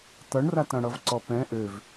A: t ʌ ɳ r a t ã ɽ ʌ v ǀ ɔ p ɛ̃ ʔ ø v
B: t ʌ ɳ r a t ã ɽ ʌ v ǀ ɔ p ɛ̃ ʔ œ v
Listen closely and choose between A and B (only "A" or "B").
A